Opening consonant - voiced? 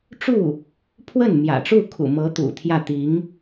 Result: no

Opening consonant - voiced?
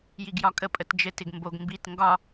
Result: yes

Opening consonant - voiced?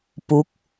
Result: no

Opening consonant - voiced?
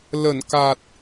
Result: yes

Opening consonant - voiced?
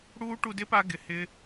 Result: yes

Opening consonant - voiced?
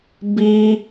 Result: yes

